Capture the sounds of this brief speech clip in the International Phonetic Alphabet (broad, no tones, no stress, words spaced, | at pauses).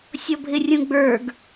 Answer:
sʲɔbʱɪrʲũɡ͡bə˞ɡ